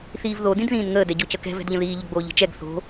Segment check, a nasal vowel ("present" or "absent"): present